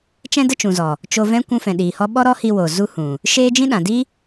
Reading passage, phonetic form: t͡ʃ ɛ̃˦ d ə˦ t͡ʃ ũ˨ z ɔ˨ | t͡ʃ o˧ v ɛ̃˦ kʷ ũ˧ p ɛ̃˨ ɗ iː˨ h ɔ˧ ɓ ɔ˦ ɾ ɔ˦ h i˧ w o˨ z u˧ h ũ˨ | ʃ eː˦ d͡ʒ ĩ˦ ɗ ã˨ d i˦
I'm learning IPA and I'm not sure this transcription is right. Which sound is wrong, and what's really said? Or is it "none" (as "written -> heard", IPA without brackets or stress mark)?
p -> f